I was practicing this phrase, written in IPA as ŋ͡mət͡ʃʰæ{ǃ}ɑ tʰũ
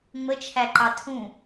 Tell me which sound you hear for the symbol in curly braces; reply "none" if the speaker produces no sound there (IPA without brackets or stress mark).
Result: ǃ